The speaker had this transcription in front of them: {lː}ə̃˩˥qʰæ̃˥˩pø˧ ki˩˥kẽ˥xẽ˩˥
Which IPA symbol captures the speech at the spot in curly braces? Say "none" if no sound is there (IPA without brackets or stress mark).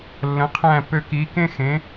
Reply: lː